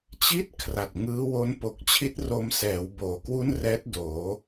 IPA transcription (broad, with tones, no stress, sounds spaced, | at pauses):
t͡ɕ i˥˩ t̚ kʰ r a˨˩ t̚ ŋ ɯː˦˥ w o˦˥ n p o˨˩ k̚ t͡ɕʰ i˦˥ t̚ r o˧ m s ɛː˩˦ w b oː˨˩ k w u˥˩ n r ɛː˦˥ t̚ d oː˩˦